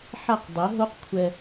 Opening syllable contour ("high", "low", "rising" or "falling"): falling